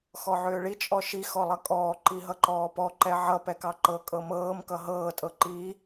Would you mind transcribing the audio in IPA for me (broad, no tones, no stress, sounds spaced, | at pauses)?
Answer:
x ɔ ʕ ʏː ɭ i t͡ʃʼ ɔ ʃ i x ɔ lˠ ʌ kʼ ɔː ǃ i ɦ ʌ ǃ ɔː p ɔ ǃ ɛ ʕ ʌ p ɛ k ɑ ǃ ɤ kʼ ɤ m ɤː m k ʌ ɦ ɤː tʼ ɤ ǃ i